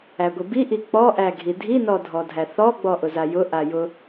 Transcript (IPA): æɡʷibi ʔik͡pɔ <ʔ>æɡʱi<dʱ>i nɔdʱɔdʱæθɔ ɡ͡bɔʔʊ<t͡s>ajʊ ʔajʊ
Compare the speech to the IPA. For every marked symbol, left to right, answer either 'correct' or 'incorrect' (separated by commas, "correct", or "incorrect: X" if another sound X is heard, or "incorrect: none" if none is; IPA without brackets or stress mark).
correct, correct, incorrect: z